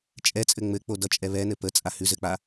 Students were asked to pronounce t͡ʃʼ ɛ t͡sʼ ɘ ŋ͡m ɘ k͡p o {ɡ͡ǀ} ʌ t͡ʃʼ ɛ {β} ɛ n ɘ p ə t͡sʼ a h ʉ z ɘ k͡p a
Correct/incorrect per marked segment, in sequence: incorrect: d, correct

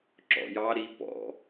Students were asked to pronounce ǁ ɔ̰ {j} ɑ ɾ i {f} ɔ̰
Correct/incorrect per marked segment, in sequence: correct, incorrect: p

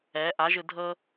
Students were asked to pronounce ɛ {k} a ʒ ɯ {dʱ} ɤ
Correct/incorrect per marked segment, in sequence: incorrect: ʔ, correct

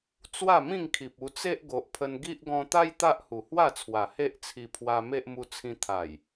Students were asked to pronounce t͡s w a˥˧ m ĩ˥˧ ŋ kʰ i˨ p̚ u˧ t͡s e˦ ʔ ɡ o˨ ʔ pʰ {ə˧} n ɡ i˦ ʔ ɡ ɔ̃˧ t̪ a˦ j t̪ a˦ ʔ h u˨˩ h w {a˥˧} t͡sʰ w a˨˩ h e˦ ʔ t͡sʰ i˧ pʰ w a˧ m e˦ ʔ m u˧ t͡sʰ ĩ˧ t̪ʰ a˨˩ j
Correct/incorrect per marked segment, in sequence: correct, correct

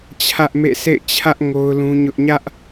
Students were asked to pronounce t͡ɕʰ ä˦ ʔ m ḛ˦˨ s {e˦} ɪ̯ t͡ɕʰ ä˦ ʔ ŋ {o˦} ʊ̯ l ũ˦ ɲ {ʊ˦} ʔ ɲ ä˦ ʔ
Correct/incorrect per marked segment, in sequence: incorrect: ḛ˦˨, correct, correct

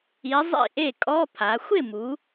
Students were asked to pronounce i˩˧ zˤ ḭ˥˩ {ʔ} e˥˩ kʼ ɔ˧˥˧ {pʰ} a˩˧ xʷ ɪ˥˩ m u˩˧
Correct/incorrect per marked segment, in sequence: correct, correct

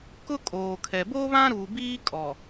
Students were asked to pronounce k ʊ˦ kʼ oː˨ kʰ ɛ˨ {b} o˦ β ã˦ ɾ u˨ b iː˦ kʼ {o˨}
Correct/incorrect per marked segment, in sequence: correct, incorrect: ɔ˨

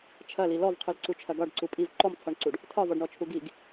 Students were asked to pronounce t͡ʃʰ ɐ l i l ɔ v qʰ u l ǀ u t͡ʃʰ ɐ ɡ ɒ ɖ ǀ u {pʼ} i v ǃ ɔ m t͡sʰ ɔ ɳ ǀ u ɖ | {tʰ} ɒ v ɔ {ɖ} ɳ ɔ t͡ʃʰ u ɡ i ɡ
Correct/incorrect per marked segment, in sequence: correct, correct, correct

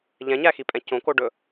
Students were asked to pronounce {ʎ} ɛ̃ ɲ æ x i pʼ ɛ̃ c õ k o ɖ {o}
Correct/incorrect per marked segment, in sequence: correct, incorrect: ɵ

